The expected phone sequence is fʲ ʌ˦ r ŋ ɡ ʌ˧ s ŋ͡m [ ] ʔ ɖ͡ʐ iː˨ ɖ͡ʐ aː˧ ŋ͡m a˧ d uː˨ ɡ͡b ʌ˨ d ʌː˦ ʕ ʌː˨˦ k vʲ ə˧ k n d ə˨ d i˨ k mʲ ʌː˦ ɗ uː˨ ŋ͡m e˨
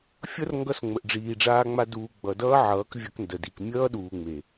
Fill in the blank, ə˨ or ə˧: ə˨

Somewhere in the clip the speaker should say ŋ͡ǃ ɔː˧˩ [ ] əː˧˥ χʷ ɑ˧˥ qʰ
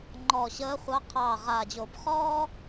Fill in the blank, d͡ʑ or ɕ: ɕ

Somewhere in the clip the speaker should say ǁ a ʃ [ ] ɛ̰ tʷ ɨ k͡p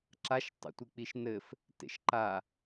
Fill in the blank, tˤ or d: tˤ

